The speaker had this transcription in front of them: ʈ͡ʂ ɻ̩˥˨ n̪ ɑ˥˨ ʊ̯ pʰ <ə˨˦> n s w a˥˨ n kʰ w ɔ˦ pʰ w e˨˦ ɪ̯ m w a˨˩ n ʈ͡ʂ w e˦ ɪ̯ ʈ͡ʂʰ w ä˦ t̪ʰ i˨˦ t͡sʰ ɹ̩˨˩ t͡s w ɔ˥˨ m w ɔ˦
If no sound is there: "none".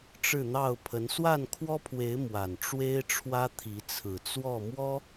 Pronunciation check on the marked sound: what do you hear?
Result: ə˨˦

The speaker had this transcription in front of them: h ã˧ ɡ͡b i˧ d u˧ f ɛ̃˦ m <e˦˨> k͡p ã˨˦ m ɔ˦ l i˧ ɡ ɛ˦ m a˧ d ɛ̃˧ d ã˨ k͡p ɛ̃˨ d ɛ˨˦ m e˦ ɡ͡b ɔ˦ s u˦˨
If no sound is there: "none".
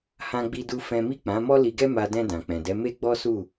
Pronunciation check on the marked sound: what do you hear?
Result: i˦˨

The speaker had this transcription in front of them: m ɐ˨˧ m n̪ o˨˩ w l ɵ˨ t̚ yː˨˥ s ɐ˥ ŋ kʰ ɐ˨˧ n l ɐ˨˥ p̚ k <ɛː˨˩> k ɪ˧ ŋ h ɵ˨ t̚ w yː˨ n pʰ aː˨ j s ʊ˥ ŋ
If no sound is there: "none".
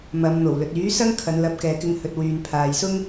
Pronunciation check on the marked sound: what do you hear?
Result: ɛː˨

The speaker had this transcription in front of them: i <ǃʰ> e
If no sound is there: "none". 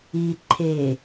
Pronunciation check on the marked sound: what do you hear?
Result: ǃʰ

